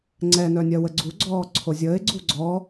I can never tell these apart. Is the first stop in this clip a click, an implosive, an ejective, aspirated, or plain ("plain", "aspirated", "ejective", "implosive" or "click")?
click